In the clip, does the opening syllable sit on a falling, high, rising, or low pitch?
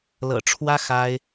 low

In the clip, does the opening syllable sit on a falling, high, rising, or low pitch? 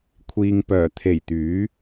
low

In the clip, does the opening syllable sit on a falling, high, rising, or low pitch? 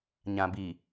low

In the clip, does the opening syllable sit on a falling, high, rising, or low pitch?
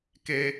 high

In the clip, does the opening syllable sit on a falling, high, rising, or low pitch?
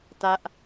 high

